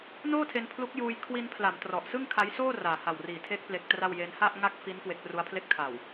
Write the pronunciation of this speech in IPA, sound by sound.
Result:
n oː˥˩ tʰ e˧ n pʰ l u˦˥ k̚ j uː˧ j kʰ w i˧ n pʰ l a˩˦ m t r ɔ˨˩ ʔ s ɯ˥˩ ŋ kʰ a˦˥ j s oː˥˩ r aː˨˩ h a˨˩ w r iː˩˦ tʰ e˦˥ k̚ p l e˦˥ k̚ t r a˥˩ w j e˦˥ n h a˥˩ ʔ ŋ a˥˩ k̚ f i˦˥ n k w e˦˥ k̚ r u˦˥ a̯ pʰ l e˥˩ k̚ tʰ a˨˩ w

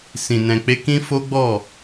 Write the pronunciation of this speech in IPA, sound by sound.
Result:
s ĩ˨ n ɛ̃˨ k͡p e˧ k ĩ˦ f o˦ ɡ͡b ɔ˦˨

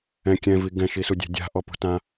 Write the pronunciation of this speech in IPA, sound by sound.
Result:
ɛ̃ kʲ ɛ̃ v i ɡ ɛ̃ ʃ i s u dʲ ɛ̤ dʲ a̤ ʔ ɔ p ṳ t ã

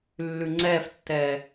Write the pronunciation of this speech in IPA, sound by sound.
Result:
lː ʉ ŋ͡ǀ ɛ f tː ɛː

